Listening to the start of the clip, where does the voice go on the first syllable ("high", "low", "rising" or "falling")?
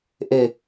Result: falling